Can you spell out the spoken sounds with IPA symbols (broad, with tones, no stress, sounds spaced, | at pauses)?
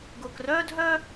ɡ ʊː˧ k r œː˥ dʱ œ˥